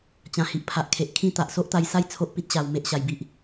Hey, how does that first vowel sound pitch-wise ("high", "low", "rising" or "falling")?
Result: low